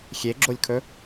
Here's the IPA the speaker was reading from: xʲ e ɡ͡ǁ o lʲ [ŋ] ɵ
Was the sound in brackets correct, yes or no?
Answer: no